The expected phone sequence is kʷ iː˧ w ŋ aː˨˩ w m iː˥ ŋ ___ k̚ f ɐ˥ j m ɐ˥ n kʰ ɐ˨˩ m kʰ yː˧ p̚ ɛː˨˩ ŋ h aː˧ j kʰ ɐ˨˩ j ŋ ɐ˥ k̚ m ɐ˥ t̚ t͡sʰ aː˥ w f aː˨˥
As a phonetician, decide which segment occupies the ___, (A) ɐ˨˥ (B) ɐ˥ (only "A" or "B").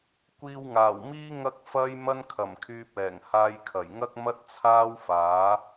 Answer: B